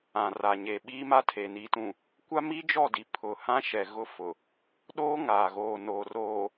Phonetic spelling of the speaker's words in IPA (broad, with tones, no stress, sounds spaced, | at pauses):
ã˨ r a˨ ɲ e˨ ɓ iː˦ m a˦ tʰ e˨ n i˨ t ũ˨ | kʷ a˦ m i˦ d͡ʒ ɔ˦˨ d i˨ pʰ ʊ˨ h ã˦ ʃ ɛ˨ ɣ ʊ˦ f ʊ˨ | ɗ oː˦ ŋ aː˨ ɣ oː˨ n oː˨ r oː˨